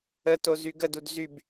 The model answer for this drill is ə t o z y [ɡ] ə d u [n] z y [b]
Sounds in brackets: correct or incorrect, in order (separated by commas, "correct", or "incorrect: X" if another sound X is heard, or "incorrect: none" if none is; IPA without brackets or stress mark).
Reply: correct, incorrect: d, correct